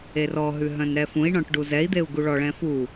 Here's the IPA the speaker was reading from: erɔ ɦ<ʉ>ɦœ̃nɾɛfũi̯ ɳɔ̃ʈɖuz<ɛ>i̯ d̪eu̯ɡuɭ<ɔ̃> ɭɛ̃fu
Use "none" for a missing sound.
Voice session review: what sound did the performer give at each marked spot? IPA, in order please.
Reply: ʉ, ɛ, ɔ

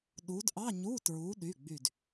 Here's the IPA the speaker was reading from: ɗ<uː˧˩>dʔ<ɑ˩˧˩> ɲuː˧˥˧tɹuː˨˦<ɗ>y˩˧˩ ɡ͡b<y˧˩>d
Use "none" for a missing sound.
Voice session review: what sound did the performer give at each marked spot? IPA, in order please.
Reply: uː˨˦, ɑ˧˥˧, ɗ, y˧˩

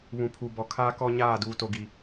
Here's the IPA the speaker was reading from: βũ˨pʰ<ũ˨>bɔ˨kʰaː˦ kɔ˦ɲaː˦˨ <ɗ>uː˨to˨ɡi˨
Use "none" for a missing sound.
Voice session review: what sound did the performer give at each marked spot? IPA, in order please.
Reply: u˨, d

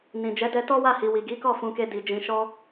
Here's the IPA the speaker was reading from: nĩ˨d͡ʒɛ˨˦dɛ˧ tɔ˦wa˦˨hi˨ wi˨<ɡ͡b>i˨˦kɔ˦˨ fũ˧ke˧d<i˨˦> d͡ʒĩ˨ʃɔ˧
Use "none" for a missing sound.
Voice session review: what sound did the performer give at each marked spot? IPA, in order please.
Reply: ɡ, i˨

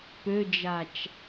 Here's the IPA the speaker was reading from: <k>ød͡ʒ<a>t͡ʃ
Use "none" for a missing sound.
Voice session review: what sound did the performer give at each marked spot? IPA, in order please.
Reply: p, a

